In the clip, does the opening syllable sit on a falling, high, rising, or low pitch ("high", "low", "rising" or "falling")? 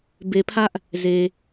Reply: low